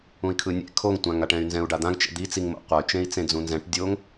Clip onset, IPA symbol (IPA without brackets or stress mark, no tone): ũ